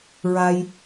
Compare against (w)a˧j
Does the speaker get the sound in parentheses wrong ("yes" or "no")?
yes